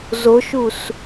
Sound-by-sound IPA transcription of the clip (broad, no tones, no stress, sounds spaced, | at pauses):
z o ʃ u s